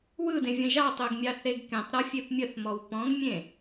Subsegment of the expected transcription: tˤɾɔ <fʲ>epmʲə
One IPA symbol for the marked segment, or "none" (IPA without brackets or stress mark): fʲ